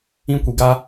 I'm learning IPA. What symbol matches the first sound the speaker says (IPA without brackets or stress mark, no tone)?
ĩ